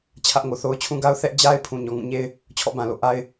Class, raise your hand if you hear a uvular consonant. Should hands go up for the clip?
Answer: no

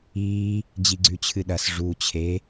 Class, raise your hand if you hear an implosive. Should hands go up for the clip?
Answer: yes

